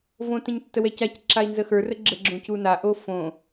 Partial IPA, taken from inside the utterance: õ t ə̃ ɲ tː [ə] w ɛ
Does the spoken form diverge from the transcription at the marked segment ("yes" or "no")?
no